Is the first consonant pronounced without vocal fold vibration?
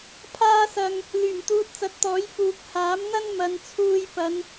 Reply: yes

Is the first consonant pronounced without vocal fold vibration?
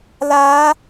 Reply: no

